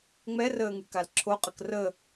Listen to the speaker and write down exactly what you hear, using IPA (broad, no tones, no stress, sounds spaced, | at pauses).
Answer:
ŋ͡m ɛ r əː ŋ y k a l ǁʰ o qʼ ə k r ə